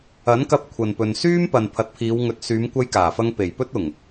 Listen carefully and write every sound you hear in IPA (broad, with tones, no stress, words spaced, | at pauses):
ɐ˨˥nkɐ˧p̚ kʷʰɐ˨npɵ˨n syː˥mpɐ˨n pʰɐ˨˥t̚pʰiː˨˧wŋɵ˨˥t̚ syː˨˧mkʷɐ˧jkaː˨˩fɐ˧ŋ pe˨˩jpɵ˥t̚ʊ˨˩ŋ